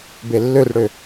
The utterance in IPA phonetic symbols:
b e lː ø r ɽ ø

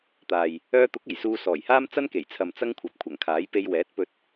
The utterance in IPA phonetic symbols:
t̪ aː˨ j | œː˧ t̪ ʊ˨˥ k̚ e˨˩ j s uː˧ s ɔː˨˩ j h aː˥ m t͡s ɐ˥ n k e˨˩ j t͡sʰ ɐ˨ m t͡s ɐ˥ ŋ kʷʰ ɐ˨ p̚ kʷʰ ɐ˨˩ ŋ kʰ aː˨˥ j p e˧ j w ɛː˨˥ t̚ p ɵ˧ t̚

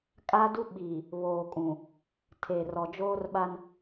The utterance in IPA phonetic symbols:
kʼ aː˦ d u˦ ɓ iː˨ | β oː˨ kʼ ũ˨ | tʰ e˨ r ɔ˨ d͡ʒ oː˦ r ɓ a˦ n

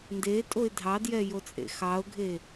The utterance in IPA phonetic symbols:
n d e tʼ o ɪ̯ dʱ ɑ d j ɛ j o t͡sʼ ḛ x ɑ ʊ̯ ɡʱ e

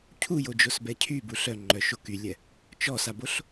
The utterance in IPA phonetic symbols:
cʰ u j o d͡ʒ o s b ɛ cʰ y b u ɬ œ ŋ͡ǃ œ ʃ o k y lʲ ɛ | t͡ʃ ɔ s a b o ɬ

